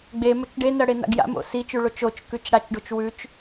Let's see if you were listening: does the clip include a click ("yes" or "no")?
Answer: no